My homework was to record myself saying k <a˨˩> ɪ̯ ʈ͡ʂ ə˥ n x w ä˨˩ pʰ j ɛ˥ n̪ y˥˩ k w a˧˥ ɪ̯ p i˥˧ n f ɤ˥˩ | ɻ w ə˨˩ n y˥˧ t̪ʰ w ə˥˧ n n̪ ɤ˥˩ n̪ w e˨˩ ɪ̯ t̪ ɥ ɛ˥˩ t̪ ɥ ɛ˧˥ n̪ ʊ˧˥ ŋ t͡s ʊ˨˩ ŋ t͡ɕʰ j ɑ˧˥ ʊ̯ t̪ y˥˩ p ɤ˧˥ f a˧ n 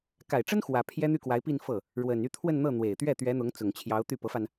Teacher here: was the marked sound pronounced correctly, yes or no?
yes